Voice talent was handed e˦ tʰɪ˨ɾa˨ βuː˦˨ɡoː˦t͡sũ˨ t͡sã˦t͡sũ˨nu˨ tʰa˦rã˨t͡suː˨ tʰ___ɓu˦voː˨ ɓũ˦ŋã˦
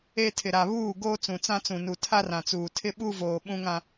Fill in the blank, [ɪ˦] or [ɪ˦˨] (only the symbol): ɪ˦